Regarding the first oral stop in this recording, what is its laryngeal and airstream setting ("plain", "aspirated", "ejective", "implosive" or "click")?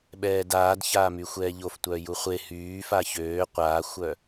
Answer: implosive